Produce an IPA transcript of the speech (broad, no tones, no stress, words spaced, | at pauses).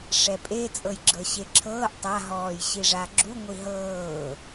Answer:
ʂɛpʼe t͡sʼɤjɡ͡ǁɤɕeǁʰɤːʔ tˤa ɦɔːjɕiʐaɡ͡ǁu ŋʷiɦɤː